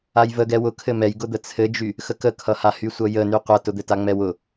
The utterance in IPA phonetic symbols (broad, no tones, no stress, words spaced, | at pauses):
ajvəɡɛ wʊkʰɘ mɛjɡʊd̪ə t͡sʰɘd͡ʒy | xəkəkʰʌha hysʷʌjəny qʷʌtʊd̪ɘta ŋ͡mɛwʊ